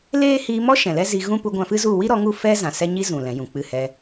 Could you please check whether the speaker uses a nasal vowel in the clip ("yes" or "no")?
yes